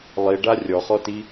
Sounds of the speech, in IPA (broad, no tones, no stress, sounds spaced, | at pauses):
lˠ i ɖ a rʲ ɔ χ ɔ t i